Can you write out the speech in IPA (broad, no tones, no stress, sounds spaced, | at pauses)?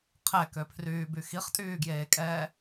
qʰ ɛ k ø pʰ r yː b y x i χ tʼ yː ɡ j eː kʼ ɛː